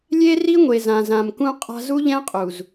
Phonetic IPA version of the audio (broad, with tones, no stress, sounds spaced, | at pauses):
lʲ e˦ r i˦ ŋʷ e˨ z ã˨ z ã˨ m k ũ˦ qʼ a̤˦ z u˦ ʎ ɛ̃˦ qʼ u˨ z